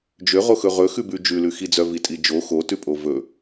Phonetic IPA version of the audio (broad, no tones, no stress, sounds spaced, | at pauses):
d͡ʒ ø ʁ o x ɵ ʁ ɵ x ʉ b ʉ d͡ʒ ʉ l ʉ x i d͡z œ v i tʼ i d͡ʒ o x o t ʉ pʼ o v ɵ